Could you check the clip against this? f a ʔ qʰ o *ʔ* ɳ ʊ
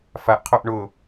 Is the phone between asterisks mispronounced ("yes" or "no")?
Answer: no